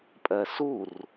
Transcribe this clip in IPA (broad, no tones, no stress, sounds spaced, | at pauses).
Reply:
pʼ ɜ s u r